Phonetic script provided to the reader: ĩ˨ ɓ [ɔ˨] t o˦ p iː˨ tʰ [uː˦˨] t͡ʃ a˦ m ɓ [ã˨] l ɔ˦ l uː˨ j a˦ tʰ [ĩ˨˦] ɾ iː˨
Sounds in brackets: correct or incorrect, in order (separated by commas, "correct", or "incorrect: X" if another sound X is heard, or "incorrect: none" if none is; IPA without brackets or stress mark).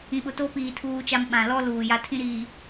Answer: incorrect: ʊ˨, incorrect: uː˦, correct, incorrect: ĩ˦